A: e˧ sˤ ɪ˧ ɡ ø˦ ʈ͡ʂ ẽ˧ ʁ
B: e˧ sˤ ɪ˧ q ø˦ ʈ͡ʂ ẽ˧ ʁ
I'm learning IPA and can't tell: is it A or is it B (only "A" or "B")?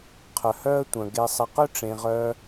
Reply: B